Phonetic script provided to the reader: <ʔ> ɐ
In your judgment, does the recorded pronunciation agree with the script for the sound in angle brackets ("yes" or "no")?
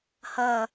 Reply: no